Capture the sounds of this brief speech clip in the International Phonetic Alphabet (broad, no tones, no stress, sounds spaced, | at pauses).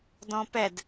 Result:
d ɔ̃ p ɛ d